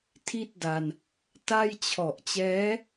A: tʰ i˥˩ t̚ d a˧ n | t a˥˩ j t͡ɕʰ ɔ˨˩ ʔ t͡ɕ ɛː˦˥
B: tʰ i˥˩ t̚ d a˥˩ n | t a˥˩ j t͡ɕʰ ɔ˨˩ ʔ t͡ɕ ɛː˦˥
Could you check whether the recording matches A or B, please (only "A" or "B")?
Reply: A